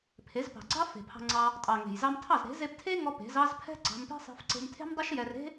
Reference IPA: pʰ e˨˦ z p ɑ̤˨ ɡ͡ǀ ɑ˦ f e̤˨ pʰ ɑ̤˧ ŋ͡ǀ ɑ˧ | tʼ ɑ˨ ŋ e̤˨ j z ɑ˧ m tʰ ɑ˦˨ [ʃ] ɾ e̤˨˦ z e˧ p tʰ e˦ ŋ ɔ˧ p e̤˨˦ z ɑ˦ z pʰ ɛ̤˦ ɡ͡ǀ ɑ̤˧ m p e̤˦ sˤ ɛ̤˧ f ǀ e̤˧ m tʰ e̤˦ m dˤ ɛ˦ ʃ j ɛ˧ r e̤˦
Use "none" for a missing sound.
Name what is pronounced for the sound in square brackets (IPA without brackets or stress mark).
z